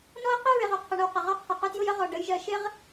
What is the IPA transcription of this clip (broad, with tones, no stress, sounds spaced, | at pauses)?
n ɔ˦ ɪ̯ q ɪ˦ ɹ ɪ˨ ʁ ʊ˨ qʰ ʊ˨ ɳ ə˨ w q ə˨ ʁ ɒ˦˨ qʰ ɪ˨ q ʊ˦ t j ʊ˦ j ə˦ ʁ ɔ˨ ɖ ə˨˦ j ʒ ɜ˨ ʃ ɪ˦ ʁ